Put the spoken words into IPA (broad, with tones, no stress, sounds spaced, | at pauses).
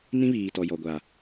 n ĩ˦ β iː˨ t ɔ˨ j ɔ˨ ɡʷ a˨